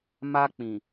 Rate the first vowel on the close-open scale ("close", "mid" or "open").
open